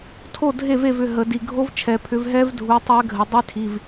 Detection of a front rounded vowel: present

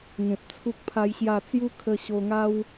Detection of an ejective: absent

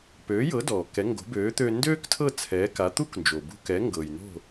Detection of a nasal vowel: absent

